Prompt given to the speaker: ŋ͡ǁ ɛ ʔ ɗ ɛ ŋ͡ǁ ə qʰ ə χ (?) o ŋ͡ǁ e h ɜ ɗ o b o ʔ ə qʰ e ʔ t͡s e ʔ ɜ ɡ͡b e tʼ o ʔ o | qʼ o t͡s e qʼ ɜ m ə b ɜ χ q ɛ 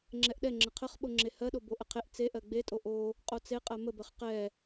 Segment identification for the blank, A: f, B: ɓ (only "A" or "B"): B